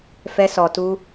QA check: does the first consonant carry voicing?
no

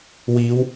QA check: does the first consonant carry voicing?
yes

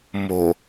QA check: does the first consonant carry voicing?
yes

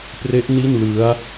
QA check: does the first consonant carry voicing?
no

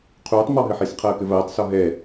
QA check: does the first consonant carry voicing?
no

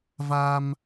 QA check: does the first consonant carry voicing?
yes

